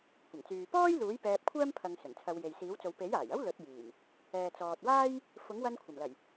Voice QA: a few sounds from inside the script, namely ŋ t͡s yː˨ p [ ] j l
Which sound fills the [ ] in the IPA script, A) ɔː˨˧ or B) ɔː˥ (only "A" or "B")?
B